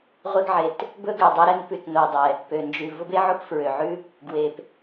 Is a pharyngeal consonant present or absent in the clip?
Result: present